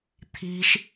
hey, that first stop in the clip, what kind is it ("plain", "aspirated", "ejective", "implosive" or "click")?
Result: aspirated